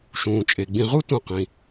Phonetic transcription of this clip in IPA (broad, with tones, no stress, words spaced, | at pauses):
ʃũː˩t͡ʃʼe˩ ɡ͡bĩ˨ʁu˦ tũ˨qĩ˩